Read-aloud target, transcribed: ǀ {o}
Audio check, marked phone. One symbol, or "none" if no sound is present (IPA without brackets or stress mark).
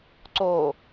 o